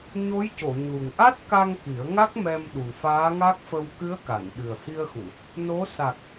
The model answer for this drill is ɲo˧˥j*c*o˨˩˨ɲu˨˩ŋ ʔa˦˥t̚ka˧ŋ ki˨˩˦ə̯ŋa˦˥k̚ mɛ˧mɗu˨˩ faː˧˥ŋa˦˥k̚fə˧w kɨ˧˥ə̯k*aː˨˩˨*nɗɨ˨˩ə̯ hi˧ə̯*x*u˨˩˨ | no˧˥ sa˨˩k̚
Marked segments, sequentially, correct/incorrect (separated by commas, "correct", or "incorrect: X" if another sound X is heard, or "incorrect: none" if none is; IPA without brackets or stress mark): correct, incorrect: a˨˩˨, correct